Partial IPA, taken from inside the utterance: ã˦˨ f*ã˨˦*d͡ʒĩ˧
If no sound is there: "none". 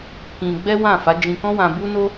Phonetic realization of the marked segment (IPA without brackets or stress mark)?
a˨˦